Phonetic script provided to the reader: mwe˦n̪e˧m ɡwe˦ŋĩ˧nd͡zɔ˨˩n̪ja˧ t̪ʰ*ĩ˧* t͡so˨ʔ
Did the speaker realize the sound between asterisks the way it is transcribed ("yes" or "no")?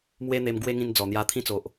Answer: yes